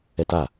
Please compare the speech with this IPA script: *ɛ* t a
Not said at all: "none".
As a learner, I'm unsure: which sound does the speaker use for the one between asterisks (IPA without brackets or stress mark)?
ɛ